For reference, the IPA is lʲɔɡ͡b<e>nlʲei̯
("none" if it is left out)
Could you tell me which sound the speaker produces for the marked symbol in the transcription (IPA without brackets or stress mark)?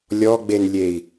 e